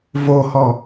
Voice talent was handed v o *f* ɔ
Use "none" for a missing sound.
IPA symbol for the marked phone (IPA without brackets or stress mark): h